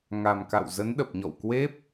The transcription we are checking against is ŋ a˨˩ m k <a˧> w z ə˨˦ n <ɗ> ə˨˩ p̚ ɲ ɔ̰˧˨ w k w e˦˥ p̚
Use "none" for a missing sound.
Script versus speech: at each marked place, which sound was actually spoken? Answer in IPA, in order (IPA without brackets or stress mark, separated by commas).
a̰˧˨, ɗ